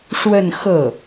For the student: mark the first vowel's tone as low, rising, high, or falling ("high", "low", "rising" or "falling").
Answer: falling